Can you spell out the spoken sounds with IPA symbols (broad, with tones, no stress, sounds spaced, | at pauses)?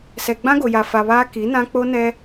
s ɛ˨ ɡ͡b ã˦ ɡ o˨ j a˨ f a˨ β aː˦ k i˨˦ n ã˦ k͡p o˦ n ɛ˦